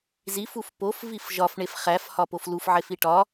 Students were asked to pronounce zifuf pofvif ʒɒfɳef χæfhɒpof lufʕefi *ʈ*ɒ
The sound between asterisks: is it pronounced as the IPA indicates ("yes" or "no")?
yes